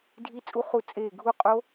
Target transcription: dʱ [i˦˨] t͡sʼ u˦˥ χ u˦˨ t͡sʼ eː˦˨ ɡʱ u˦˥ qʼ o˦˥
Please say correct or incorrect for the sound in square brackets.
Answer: incorrect